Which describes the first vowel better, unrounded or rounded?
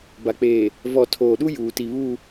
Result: unrounded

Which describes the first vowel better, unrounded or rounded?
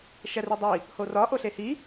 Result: unrounded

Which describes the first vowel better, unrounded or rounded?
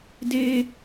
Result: unrounded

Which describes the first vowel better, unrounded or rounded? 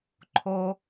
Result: rounded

